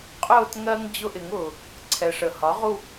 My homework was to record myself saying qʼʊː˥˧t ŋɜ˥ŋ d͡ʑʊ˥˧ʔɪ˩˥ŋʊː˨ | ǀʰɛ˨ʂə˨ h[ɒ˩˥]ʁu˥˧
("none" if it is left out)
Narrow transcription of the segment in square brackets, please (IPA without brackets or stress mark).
ɒ˩˥